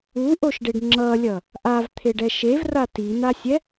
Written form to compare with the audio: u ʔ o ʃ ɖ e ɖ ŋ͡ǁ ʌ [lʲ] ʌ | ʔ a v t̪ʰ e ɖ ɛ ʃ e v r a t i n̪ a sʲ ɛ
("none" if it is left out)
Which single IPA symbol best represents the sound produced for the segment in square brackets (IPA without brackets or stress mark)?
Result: lʲ